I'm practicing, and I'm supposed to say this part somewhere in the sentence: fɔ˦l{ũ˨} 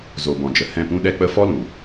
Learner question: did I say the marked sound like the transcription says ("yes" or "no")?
yes